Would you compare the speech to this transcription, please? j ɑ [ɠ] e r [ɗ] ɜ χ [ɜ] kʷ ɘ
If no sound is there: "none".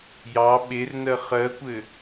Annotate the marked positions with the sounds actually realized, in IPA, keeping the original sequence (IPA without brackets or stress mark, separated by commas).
ɓ, n, ɜ